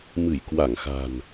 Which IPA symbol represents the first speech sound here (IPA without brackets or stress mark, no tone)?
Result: m